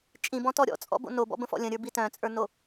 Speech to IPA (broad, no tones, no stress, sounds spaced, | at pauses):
t͡ʃʼ ĩ b ɔ̃ t ɔ ɾʲ ɔ̰ t͡sʼ ɔ̰ b o̰ n o b ɔ̰ b ə̃ f ɔ̰ lʲ ə̃ ɾʲ ə˞ b i t œ̃ t͡sʼ ə˞ n o